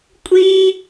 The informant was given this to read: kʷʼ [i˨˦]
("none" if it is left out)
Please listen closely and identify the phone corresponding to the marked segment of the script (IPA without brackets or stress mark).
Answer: i˦